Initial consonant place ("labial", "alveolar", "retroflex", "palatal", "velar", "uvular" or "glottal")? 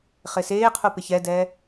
uvular